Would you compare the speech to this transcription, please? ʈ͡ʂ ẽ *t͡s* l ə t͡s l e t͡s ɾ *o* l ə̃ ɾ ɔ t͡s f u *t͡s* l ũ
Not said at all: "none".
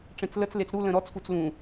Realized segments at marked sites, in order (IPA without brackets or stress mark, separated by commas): t͡s, u, t͡s